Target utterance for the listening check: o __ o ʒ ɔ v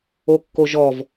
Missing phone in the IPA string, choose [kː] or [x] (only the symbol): kː